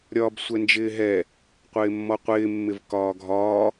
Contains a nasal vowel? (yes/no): no